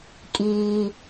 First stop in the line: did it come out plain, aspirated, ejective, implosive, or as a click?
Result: ejective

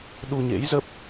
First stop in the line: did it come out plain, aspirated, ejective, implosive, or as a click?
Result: implosive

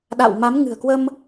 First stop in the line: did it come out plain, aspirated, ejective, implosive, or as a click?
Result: implosive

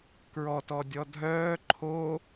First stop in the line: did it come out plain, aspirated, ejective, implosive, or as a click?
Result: plain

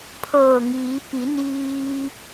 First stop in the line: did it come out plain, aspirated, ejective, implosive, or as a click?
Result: aspirated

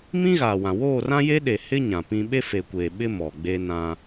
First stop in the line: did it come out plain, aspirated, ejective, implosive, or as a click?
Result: implosive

